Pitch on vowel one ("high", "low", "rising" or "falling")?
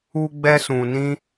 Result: high